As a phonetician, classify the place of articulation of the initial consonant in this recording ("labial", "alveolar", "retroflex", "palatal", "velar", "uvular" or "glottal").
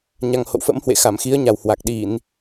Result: palatal